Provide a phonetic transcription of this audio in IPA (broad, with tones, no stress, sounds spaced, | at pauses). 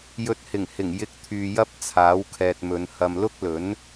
j ɵ˨ t̚ h ɪ˨˩ ŋ h ɪ˨˩ ŋ j ɪ˧ k̚ t̪ʰ yː˨ j ɐ˥ p̚ t͡sʰ aː˨˥ w kʰ ɛː˨ t̚ m ɵ˨˧ n h ɐ˨ m l ʊ˥ k̚ l ɵ˨˥ n